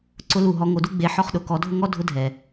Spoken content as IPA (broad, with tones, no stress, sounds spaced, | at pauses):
ǀ ʊ˧ l u˨ ɦ ɔ˨˦ ŋ o˨˦ d u˦ ɡ͡b e˨˦ ħ ɔ˧ χ ɗ ʊ˨ k ɔ˨˦ dʱ ʊ˦ ŋ ɔ˦ dʱ ʊ˦ dʱ ɛ˨